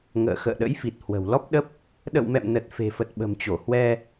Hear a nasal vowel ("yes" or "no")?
no